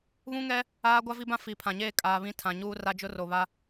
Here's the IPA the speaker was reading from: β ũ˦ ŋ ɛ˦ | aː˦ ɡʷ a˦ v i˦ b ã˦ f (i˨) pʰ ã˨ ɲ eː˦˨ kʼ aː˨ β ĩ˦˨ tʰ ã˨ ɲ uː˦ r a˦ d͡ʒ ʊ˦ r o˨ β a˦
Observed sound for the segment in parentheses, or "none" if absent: i˨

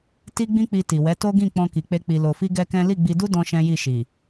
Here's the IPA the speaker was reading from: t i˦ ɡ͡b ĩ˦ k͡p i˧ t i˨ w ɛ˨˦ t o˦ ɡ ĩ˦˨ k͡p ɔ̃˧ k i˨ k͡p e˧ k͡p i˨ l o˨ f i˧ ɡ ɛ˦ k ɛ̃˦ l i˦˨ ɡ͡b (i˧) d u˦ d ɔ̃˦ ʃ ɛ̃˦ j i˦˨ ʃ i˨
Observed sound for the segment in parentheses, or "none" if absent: i˧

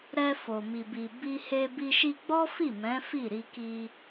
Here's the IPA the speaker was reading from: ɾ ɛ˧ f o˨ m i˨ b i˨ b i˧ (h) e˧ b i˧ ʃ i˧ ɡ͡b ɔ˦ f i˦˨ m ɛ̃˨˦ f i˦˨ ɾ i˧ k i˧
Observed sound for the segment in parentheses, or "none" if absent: h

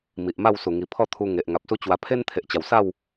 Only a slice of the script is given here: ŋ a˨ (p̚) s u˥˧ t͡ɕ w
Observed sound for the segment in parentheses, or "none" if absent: p̚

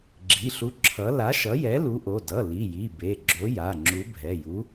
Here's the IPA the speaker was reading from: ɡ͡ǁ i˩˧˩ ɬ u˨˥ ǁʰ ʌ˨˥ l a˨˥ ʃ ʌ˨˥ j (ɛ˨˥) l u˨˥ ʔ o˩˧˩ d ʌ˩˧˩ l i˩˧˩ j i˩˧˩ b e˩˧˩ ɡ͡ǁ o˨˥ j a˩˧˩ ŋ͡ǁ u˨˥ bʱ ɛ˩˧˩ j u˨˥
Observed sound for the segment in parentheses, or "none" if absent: ɛ˨˥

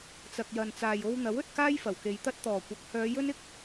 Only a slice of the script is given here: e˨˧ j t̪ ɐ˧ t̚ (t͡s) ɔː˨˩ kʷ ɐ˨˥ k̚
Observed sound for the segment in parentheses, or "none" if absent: t̪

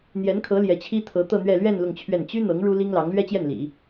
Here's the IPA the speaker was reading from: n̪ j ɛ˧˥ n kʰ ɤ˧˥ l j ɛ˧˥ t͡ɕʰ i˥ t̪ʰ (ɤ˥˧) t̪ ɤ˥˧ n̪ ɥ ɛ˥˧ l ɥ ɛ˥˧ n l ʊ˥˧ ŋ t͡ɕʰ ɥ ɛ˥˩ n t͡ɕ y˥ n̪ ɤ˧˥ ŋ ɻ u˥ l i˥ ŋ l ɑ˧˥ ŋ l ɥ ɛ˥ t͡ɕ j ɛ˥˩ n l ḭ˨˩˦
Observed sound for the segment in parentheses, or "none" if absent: ɤ˧˥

